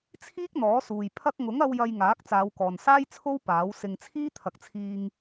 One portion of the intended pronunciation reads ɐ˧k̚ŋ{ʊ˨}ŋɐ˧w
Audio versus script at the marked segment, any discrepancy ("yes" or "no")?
yes